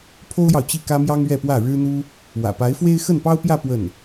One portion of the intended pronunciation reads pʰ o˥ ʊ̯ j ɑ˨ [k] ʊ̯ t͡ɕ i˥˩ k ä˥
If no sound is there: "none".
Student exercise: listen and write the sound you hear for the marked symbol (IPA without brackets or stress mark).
none